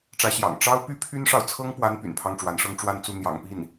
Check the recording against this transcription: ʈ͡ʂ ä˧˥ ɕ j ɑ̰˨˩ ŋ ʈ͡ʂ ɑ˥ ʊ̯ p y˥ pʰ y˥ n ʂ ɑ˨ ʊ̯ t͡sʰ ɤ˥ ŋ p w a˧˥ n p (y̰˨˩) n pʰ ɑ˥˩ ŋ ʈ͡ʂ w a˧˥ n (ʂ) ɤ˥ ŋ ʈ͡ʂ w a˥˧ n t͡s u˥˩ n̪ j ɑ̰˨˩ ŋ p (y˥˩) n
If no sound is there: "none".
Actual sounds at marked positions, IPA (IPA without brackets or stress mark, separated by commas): y̰˨˩, ʂ, i˥˩